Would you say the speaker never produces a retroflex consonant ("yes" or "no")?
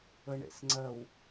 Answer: no